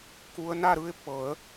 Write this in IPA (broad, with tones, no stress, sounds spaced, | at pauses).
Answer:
k u˦˥ ə̯ n a˥˧ ɾ ɯ˥˧ ɪ̯ pː ɤ˨˩˦ ə̯